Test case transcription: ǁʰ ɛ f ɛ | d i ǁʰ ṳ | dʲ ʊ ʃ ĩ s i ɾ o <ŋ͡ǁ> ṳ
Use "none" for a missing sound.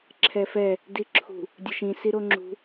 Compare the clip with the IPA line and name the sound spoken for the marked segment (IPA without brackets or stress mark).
ŋ͡ǁ